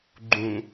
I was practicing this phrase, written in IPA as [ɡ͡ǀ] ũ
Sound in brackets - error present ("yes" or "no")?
yes